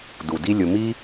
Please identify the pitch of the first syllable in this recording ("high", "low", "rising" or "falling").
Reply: low